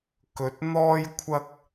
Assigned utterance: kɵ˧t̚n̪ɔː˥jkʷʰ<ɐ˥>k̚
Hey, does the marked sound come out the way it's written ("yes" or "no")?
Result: yes